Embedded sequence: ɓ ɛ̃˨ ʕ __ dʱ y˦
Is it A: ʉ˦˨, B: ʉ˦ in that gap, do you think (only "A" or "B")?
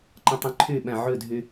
A